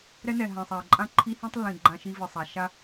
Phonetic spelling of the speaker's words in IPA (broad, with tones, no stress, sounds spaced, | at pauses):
ɾ ɛ˦ n ɛ˨ ɦ ã˨ sˤ a˨ ə̯ ǃʼ ã˦ ǃʰ i˦ h ĩ˦ tˤ lː ĩ˨ ɡ͡ǃ ã˦ ʃ i˦ v ɨ˨ sˤ a˨˦ ʃ a˦